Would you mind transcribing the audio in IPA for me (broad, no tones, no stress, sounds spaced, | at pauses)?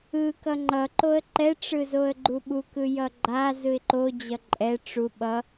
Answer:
ɯ k ʌ ŋ͡ǃ ʌ ǃ o ə̯ ǃ ɛ ʈ͡ʂ ɯ z o ə̯ ɡ͡ǃ u ɓ u k ɯ j ʌ ɡ͡ǃ a z ɯ ɪ̯ ǃ o d͡ʑ ʌ ǃʼ ɛ ʈ͡ʂ u ɓ ʌ